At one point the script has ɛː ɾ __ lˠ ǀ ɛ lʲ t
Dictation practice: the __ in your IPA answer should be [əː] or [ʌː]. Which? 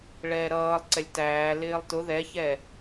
ʌː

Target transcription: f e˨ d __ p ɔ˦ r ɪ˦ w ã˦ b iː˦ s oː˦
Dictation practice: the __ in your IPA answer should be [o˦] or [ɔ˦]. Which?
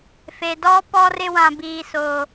ɔ˦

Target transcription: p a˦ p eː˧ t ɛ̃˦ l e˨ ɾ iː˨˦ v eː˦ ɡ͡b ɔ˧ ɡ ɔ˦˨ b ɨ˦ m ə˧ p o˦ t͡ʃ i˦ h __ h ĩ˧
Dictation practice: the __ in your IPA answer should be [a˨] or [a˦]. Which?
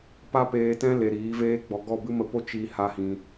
a˦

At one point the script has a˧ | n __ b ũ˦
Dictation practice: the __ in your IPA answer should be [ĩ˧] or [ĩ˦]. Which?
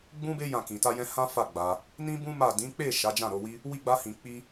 ĩ˦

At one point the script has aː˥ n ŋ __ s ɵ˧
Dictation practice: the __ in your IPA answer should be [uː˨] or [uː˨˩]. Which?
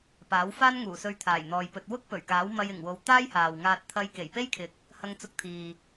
uː˨˩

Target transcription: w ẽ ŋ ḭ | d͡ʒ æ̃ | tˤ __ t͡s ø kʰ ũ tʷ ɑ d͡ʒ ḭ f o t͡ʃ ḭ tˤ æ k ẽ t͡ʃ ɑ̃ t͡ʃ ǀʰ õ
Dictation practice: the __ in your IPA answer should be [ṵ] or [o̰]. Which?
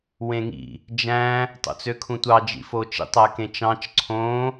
o̰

